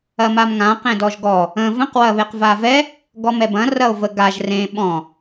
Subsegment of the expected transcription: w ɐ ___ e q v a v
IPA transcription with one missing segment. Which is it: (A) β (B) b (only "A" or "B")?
A